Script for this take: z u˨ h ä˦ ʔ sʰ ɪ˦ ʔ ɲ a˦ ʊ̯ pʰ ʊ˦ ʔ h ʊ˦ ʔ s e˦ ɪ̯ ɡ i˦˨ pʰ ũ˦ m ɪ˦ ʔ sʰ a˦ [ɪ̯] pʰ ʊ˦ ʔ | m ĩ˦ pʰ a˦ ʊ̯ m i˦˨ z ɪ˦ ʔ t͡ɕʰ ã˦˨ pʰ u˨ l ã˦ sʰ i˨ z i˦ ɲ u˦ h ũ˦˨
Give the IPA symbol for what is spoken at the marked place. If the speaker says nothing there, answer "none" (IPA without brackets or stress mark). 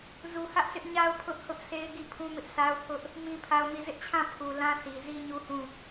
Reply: ʊ̯